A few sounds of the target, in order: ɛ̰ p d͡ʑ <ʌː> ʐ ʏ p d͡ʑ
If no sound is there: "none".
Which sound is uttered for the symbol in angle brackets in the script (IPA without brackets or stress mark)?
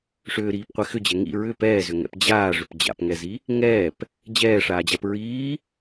aː